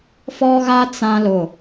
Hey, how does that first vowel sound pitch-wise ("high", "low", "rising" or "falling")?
high